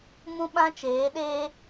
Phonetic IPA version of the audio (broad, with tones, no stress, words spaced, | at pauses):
mũ˦ɓã˦t͡ʃeː˨˦ɗeː˦